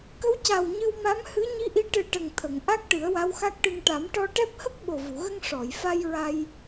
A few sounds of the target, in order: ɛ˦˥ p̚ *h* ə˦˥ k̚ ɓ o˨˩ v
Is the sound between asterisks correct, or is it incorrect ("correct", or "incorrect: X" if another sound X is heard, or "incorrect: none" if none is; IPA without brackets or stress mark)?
correct